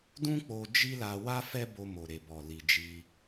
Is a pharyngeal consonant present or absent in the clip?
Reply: absent